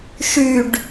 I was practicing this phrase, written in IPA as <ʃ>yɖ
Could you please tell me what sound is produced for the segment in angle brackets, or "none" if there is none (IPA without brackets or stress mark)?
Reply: ʃ